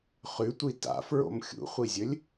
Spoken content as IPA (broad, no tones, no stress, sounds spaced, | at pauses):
χ ʉ tʷ i t a̰ f ɹ o̰ m xʲ ṵ χʷ i zʲ ɵ lʲ